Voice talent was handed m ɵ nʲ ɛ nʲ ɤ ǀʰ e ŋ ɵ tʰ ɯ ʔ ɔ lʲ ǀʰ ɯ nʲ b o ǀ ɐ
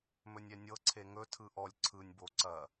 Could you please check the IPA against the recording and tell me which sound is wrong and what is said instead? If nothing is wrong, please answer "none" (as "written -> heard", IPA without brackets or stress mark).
none